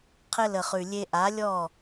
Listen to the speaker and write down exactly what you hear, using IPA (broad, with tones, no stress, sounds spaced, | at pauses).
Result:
qʰ ɘ˧ l ə˨ χ ʉ˨ lʲ e˧ ʔ a˨˦ lʲ ɔ˦˨